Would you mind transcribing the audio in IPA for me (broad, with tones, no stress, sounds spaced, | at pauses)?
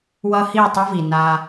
w ʌ˦ h i˦˨ tˤ ɯ˦ v i˨ n a˦